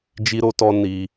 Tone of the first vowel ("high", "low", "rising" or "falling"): high